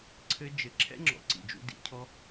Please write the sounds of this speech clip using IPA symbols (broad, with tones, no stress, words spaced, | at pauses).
ǀʰɘ˧ d͡ʒɘ˨ǁʰɛ̰˦ŋ͡ǁɔ̰˨ ǀḭ˨ d͡ʒṵ˧dḭ˧cʰɔ˦